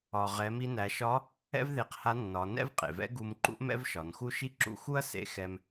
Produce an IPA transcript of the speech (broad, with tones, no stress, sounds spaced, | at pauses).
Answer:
ɒ˩ ʁ ɛ˩˧ m i˧ n æ˩˧ ʃ ɒ˧˥ | ɛ̰˥ v ð e˧ q h a˧˥ nː ɒ˩˧ n ɛ̰˥ v qʼ ḛ˩ v ɛ̰˧˥ ɡ u˧ m ǃ ṵ˥ ʔ m ɛ̰˥ v ʃ ɒ˩˧ n x u˥ ʃ i˥ ǁ ṵ˧˥ x u˥ ɐ̯ s ḛ˧˥ x ɛ˧ m